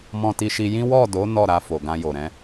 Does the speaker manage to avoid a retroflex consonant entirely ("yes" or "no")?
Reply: yes